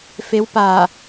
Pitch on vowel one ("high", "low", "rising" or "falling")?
rising